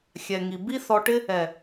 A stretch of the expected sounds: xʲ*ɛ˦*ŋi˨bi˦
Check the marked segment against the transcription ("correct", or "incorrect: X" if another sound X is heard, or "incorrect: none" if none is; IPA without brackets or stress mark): incorrect: ɛ˨